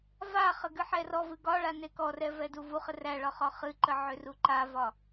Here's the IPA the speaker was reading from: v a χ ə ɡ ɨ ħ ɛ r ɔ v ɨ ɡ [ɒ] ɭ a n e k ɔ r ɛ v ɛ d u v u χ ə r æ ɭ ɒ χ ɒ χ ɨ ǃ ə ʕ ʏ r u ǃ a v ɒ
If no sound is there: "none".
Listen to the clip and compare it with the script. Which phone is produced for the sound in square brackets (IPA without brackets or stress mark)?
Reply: ɒ